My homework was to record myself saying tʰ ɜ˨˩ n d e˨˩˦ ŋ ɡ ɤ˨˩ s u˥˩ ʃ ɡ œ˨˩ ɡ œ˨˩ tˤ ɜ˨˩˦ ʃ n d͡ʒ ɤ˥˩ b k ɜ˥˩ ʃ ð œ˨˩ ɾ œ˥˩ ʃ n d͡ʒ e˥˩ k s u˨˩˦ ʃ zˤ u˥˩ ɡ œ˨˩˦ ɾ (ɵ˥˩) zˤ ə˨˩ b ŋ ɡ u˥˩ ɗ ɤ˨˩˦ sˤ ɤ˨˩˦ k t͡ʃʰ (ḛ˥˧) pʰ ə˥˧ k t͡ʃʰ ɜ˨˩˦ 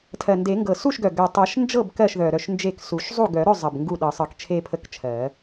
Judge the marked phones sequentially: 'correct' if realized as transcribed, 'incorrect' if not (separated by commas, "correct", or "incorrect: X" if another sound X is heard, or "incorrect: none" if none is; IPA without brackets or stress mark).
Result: correct, incorrect: e˥˧